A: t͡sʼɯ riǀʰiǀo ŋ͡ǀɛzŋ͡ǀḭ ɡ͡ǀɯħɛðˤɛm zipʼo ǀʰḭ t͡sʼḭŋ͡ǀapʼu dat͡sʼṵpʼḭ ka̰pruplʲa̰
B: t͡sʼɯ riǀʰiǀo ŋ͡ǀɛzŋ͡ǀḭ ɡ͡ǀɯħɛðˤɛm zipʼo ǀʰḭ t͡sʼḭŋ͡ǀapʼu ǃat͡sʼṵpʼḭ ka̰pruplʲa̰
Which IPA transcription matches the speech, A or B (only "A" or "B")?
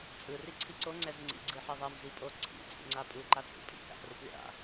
B